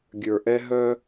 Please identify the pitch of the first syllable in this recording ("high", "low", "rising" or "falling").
low